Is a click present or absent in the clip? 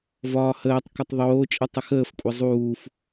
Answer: absent